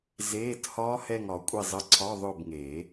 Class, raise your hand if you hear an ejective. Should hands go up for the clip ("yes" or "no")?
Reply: yes